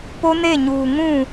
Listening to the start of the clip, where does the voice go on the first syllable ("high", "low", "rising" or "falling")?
high